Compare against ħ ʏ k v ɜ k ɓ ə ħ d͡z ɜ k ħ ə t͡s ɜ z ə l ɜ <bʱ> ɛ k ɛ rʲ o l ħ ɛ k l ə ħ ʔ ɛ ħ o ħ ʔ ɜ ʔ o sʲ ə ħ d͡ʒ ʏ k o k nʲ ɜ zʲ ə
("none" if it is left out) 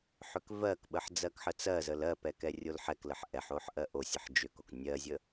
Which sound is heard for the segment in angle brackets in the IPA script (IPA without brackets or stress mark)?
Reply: p